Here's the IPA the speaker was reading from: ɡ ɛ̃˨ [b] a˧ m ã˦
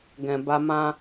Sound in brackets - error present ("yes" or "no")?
no